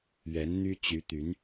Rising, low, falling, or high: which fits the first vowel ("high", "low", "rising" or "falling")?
rising